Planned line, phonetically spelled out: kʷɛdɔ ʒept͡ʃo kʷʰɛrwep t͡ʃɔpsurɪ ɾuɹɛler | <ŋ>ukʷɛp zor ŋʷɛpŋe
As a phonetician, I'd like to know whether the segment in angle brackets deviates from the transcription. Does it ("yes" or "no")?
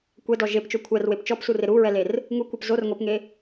no